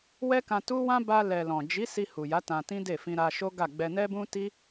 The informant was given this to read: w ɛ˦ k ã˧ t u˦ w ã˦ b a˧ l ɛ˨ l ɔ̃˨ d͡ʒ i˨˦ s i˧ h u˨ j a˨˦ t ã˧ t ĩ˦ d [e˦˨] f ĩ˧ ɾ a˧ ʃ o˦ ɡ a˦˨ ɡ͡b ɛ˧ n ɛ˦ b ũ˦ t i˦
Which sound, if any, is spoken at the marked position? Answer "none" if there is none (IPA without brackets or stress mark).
e˦˨